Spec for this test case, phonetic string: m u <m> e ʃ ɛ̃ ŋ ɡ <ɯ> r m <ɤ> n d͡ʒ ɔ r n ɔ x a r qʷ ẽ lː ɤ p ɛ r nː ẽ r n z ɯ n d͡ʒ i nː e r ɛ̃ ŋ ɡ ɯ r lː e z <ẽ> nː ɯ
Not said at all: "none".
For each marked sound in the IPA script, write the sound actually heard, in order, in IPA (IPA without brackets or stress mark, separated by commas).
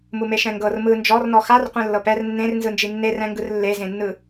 m, ɤ, ɯ, ẽ